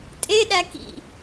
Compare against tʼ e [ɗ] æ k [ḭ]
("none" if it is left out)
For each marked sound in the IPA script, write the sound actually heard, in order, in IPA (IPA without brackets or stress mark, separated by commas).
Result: ɗ, ḭ